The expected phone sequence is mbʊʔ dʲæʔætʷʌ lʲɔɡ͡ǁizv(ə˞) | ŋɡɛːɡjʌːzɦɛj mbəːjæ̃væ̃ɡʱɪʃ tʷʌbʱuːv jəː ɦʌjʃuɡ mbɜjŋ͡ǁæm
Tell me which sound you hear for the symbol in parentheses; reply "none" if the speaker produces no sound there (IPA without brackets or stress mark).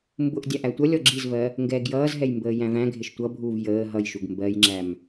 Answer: ɜ